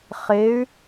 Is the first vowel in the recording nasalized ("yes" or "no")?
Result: no